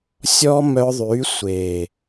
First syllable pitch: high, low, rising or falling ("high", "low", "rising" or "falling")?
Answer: high